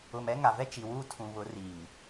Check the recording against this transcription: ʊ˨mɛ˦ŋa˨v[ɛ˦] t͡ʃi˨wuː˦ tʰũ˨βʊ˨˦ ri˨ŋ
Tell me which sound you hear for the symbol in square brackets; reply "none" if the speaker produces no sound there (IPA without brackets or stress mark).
ɛ˦